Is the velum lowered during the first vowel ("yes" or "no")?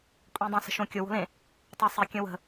yes